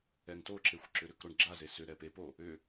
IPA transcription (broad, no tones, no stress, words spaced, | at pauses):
ɛŋtoǁexʷ ǁʏɾʏkɾoɳ ɡ͡ǁaze sʏ ɾɛpepo | ʏ